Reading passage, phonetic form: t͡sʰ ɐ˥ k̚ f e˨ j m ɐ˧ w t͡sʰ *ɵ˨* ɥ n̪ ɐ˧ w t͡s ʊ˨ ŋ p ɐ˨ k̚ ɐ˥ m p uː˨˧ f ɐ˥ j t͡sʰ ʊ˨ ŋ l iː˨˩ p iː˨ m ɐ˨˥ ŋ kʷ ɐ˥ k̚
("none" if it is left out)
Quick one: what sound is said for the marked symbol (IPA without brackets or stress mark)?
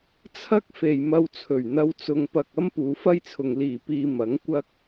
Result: ɵ˨˩